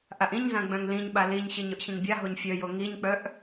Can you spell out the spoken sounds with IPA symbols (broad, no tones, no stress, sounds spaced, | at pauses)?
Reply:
ʔ a ʔ ĩ ɲ z ã ɡ͡b œ̃ ŋ l ĩ ɲ ɓ a l i ɲ ɕ i ɲ ʊ ʔ ɕ ĩ ŋ bʲ a ɦ o ɲ fʲ œ j o ŋ i ɲ k͡p œ ʔ